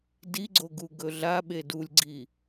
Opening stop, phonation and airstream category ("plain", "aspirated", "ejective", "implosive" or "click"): plain